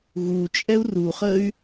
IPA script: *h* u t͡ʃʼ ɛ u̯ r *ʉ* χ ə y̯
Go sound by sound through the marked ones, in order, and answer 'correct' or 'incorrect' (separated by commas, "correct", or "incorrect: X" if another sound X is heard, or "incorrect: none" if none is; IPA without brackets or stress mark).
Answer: incorrect: ɣ, incorrect: u